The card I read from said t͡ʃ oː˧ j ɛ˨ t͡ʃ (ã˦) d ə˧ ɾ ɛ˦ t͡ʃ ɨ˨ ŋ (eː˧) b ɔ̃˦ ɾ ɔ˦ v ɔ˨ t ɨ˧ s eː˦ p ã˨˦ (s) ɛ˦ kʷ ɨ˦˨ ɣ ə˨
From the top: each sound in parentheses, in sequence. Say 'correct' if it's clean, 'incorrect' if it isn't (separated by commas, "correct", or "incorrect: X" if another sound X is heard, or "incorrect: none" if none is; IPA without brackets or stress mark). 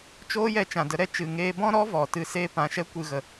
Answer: incorrect: ã˨, correct, incorrect: ʃ